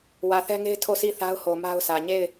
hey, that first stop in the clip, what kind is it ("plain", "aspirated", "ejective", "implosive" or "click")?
aspirated